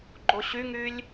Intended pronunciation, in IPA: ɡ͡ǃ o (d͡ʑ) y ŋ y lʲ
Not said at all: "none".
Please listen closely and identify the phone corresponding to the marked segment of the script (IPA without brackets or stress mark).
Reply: ɕ